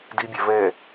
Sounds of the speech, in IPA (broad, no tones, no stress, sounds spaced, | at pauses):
d i bʲ a v ɛ